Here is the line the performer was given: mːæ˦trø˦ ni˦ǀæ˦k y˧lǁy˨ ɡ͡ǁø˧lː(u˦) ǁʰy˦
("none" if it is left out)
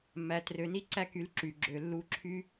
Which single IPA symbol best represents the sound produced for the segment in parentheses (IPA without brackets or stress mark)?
u˦